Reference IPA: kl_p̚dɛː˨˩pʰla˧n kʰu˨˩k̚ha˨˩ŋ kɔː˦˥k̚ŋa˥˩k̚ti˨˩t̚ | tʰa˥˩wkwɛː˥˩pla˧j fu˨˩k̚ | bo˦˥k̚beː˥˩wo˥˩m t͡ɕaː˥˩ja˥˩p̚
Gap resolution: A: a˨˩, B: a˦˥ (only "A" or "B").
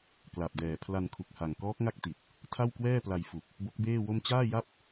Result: A